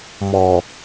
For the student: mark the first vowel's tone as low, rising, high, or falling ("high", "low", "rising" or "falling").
low